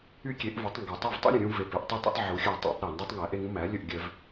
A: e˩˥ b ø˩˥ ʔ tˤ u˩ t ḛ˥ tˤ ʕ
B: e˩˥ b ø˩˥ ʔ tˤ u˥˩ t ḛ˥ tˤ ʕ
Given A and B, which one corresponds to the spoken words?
B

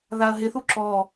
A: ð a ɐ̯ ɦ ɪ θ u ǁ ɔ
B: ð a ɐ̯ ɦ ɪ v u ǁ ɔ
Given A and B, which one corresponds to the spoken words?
A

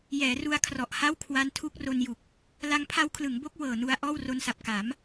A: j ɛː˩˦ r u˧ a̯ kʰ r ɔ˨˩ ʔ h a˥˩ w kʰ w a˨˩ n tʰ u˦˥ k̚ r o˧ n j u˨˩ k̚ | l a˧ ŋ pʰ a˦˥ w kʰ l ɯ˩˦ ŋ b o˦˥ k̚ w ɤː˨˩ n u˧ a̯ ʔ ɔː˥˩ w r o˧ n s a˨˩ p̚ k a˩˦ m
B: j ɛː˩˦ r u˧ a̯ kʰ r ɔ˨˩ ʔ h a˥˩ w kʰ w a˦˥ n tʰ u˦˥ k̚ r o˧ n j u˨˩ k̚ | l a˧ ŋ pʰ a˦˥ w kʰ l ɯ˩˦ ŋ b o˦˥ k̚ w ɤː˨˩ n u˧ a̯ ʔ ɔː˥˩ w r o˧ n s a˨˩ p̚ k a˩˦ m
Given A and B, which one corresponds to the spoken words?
B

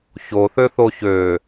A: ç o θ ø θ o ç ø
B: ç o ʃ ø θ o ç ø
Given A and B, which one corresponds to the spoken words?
A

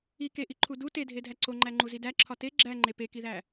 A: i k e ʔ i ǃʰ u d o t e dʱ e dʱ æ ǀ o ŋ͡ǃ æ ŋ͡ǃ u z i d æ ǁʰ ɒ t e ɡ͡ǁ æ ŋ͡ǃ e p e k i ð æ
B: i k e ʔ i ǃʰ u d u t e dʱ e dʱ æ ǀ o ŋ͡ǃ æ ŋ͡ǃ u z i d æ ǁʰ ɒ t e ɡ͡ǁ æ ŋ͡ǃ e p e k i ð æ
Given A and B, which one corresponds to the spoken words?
B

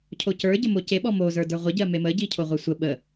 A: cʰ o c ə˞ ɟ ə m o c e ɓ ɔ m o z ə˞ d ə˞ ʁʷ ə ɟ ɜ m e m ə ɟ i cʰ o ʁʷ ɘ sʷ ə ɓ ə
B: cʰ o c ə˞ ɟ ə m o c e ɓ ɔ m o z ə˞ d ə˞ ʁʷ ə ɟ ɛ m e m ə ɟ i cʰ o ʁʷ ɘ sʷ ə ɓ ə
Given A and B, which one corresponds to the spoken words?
A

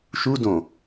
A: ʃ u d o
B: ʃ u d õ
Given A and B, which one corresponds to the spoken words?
B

